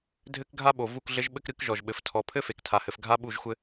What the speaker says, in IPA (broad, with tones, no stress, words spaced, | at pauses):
dʱɘ˦kɡʱa˦ɓo˨ vu˦˨kɮɘ˦ʒɓɘ˦k ɾɨ˦kʒɔ˨ʒɓɘ˨f tʰɔ˨pʰɘ˦ fe˨ktʰa˨hɘ˨f ɡʱa˦ɓu˦˨ʒxʷɘ˦